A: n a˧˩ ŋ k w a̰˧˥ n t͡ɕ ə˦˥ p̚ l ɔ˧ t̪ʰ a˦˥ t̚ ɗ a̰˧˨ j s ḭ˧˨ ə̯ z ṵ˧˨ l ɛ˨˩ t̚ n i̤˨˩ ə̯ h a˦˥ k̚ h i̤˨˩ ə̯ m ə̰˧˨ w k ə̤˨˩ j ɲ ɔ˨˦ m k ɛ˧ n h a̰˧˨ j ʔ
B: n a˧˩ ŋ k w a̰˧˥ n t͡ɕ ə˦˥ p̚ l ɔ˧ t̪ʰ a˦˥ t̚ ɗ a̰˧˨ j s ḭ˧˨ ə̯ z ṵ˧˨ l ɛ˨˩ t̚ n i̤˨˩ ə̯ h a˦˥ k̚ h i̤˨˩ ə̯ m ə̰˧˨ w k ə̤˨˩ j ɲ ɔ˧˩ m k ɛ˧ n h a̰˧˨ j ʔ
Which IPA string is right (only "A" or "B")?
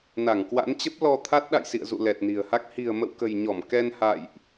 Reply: B